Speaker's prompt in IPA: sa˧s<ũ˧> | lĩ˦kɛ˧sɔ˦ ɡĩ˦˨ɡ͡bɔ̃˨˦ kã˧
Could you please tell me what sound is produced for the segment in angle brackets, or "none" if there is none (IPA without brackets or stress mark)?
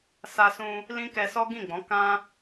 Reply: ũ˧